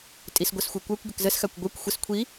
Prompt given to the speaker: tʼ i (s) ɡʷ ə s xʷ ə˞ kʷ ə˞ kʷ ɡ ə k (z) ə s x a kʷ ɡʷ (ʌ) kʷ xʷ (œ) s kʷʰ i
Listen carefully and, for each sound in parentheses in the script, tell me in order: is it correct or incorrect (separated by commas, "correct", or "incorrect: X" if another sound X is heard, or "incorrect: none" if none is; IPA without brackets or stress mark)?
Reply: correct, correct, incorrect: ə˞, incorrect: ə